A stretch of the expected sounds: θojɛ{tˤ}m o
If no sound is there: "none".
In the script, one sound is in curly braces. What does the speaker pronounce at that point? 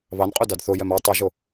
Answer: none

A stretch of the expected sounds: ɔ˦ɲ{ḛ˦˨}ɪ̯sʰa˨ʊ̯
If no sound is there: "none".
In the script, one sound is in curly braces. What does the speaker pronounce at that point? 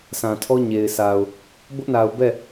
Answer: e˨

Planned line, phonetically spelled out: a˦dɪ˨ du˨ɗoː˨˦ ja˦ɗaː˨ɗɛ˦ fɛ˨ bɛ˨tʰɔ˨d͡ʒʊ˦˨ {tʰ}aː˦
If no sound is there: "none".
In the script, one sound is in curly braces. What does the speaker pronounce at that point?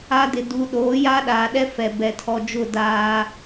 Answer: d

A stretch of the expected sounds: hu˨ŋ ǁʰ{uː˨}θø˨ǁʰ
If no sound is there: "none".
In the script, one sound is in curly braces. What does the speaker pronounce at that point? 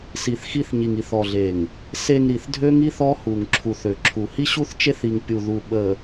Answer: u˨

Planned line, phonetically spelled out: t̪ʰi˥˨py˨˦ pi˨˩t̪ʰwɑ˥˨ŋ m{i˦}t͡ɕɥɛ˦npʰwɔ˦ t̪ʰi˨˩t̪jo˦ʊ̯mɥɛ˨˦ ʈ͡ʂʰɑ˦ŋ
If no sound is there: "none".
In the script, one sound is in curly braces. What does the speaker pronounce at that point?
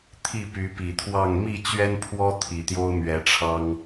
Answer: i˥˨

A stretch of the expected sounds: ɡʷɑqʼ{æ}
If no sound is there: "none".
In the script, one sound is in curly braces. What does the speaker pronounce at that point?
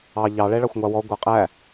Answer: æ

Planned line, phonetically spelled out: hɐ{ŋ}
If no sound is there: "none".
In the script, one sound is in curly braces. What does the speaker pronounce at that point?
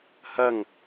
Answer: ŋ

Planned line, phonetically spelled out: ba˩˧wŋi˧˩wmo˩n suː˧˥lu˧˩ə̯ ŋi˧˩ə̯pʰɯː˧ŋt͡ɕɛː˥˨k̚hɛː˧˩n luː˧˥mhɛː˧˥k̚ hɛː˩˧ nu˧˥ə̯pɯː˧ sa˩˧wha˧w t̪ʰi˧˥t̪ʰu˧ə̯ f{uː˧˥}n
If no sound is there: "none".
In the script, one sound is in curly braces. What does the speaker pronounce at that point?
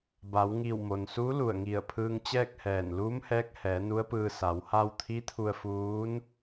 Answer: uː˧˥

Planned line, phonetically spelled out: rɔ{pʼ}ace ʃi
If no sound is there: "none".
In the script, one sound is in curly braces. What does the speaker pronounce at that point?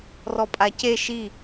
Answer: pʼ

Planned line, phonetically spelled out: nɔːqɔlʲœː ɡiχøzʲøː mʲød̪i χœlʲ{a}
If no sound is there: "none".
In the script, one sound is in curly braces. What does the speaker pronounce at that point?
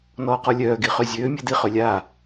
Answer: aː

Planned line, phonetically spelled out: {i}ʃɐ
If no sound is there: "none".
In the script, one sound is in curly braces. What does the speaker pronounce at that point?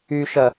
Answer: y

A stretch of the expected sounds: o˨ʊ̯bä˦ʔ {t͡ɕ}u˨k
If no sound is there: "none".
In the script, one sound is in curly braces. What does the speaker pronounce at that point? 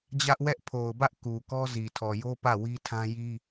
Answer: k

